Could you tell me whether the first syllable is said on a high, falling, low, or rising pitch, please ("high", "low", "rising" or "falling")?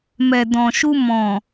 low